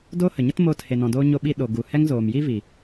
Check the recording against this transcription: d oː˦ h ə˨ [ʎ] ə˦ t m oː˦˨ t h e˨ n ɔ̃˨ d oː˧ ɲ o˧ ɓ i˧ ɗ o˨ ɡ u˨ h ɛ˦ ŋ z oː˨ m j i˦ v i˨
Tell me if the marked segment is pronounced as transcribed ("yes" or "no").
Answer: no